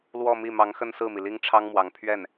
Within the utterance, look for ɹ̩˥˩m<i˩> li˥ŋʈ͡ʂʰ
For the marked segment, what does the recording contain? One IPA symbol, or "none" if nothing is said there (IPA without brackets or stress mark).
i˩